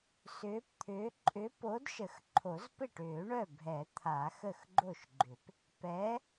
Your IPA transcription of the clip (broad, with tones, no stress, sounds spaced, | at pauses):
s ʏː˨˥ p t̪ʰ ʏː˨˥ ǃʼ ʏ˨˥ p o˨˥ d ʃ ə˨˩˦ x ǃʰ o˨˩˦ z p ɪ˥˩ ʈ ʏː˨˩˦ ɳ œ˥˩ bʱ ɛ˨˩˦ t̪ʰ a˨˩˦ x ə˥˩ x ɡ͡ǃ o˥˩ ʃ ɡ͡ǃ ʏ˨˩˦ p | p ɛ˨˥